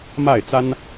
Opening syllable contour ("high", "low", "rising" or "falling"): falling